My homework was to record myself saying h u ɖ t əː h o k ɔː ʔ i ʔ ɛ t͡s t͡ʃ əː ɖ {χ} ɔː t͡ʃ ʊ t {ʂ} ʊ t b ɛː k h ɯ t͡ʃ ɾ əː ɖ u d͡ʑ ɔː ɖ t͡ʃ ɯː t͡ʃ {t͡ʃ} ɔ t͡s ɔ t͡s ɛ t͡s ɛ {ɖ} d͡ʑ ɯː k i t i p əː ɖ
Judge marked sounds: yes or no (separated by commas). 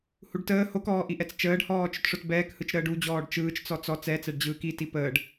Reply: no, yes, no, yes